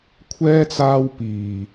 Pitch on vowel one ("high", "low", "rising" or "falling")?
high